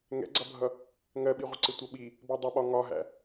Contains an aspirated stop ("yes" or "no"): no